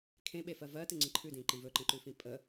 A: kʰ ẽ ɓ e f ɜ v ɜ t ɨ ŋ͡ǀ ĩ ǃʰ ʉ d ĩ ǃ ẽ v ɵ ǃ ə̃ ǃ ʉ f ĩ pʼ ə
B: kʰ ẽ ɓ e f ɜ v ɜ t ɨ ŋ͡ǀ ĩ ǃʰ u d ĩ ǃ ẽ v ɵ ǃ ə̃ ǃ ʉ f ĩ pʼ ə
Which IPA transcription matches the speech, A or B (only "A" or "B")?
A